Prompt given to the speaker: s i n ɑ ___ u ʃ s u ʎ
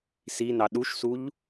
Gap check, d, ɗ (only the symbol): ɗ